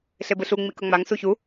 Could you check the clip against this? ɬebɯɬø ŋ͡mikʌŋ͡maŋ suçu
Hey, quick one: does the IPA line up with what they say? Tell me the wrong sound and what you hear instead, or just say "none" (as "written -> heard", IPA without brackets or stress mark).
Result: ø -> u